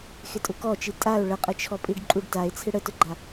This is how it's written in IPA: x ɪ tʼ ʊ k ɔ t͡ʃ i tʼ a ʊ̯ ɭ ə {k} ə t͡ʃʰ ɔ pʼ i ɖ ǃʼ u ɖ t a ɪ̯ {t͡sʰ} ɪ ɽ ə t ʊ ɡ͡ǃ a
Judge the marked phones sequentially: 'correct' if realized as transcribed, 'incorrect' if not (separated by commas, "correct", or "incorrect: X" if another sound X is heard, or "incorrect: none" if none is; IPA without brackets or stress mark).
incorrect: qʼ, correct